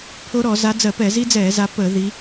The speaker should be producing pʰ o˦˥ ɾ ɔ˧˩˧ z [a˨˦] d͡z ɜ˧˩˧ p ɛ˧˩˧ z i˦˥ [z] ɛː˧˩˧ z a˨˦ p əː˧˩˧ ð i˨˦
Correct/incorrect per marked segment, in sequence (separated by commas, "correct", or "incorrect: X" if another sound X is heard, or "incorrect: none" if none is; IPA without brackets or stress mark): correct, incorrect: d͡z